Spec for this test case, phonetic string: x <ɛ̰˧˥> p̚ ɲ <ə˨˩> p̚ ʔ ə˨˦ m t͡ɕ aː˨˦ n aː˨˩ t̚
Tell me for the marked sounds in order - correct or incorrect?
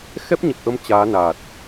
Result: incorrect: ɛ˦˥, correct

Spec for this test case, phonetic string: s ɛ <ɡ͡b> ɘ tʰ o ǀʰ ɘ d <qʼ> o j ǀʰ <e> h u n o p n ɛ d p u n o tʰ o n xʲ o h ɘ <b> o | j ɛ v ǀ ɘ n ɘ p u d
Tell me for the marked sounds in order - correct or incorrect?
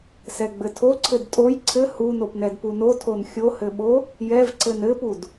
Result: correct, incorrect: tʼ, incorrect: ɘ, incorrect: ɓ

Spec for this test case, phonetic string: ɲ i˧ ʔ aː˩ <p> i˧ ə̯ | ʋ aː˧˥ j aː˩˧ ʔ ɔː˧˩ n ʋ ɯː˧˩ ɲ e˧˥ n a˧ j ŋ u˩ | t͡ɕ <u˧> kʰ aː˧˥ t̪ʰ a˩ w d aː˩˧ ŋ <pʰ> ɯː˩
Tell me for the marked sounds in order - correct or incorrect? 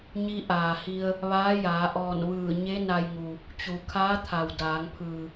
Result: incorrect: h, incorrect: u˩, correct

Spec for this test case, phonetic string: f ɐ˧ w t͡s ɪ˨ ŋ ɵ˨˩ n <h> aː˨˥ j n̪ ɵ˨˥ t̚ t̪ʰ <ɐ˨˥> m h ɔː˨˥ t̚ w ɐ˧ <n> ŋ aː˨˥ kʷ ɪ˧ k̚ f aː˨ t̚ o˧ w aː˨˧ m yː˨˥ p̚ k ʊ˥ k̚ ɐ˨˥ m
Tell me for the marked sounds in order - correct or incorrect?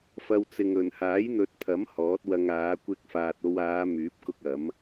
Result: correct, correct, incorrect: none

